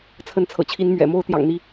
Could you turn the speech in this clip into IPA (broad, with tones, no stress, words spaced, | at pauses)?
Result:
t͡sʰə˨˦nt͡sʰɤ̰˨˩t͡ɕʰi˨˦n mɥɛ̰˨˩mo˦ʊ̯ t̪jɑ̰˨˩ŋn̪i˨˦